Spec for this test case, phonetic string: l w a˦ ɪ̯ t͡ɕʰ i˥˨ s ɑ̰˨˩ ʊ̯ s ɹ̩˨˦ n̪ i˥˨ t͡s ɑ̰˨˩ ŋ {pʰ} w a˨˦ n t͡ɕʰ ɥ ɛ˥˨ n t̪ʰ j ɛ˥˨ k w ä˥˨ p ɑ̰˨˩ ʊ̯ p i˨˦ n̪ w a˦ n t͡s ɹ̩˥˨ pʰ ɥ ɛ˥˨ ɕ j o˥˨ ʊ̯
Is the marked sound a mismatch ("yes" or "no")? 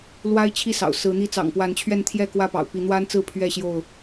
yes